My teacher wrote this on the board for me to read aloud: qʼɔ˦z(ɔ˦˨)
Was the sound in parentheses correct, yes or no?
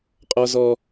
no